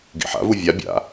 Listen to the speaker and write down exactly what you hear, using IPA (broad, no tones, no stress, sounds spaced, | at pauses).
ɡ ḭ ħ a̰ v u vʲ a bʲ a̰